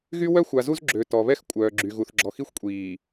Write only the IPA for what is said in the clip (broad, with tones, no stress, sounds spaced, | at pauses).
ɣ y˦ w œ˦ xʷ a˨ z u˦ z ɡ͡ǁ ø˨ t ɔ˨ β ɛ˦ x kʷʼ œː˨ ɡ͡ǁ y˨ ɣ u˨ θ ɡ͡ǁ ɔ˨ x i˦ xʷ kʷʼ iː˨